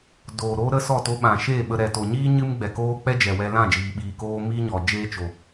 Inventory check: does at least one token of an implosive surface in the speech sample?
yes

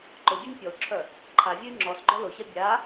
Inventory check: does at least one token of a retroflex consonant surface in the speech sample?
no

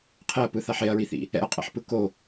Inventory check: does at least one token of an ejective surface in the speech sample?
yes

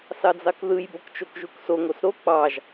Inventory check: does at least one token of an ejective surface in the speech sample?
no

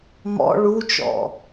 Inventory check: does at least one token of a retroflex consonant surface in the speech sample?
yes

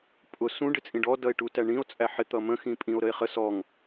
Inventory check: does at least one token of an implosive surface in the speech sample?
no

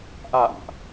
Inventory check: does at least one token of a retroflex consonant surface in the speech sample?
no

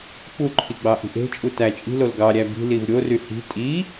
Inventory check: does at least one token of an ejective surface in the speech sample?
yes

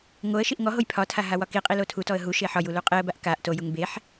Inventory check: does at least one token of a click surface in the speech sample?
no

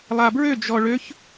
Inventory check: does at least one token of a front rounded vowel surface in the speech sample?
yes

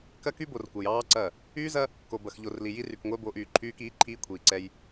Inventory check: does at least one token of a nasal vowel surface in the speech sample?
no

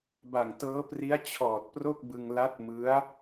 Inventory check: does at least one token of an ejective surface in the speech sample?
no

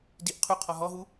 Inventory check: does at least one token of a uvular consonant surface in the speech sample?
yes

